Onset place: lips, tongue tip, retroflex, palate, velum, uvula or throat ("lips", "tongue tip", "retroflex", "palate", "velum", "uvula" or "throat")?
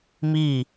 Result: lips